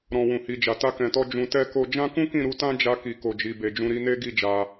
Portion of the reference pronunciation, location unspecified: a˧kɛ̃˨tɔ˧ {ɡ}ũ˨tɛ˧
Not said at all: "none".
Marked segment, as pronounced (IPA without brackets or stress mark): d͡ʒ